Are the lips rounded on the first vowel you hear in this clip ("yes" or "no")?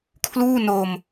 yes